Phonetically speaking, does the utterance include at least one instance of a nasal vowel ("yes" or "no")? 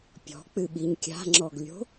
no